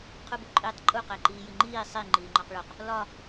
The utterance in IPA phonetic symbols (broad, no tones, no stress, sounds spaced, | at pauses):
qʰ u b u ǃʼ iː tˤ ǃʼ u q æ ǃ iː j i ŋ͡ǃ iː sˤ i ŋ͡ǃ iː ŋ͡ǃ ɒ q ɭ o q | l ɒ